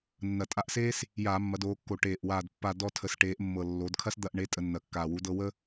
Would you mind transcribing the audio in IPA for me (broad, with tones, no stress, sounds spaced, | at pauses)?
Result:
nː ɐ˨˩ tʼ a˦˨ ʔ s eː˥ s | j aː˧˩˧ mː ɐ˩˧ d oː˩˧ kː o˨˩ ʈ eː˨˩ ʔ w aː˨˩ d pː a˦˨ d ɔ˦˨ tʰ ə˩˧ s ʈ eː˩˧ ʔ mː ɤ˨˩ lː o˩˧ d kʰ ɐ˥ s d̪ ɐ˦˨ ʔ ɳ e˧˥ tʼ ə˧˩˧ nː ɐ˨˩ kː aː˨˩ w u˧˥ d ɤ˥ w ə˥